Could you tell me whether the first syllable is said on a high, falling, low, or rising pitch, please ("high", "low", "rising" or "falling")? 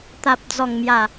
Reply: high